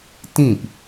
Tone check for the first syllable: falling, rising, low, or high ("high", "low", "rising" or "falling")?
falling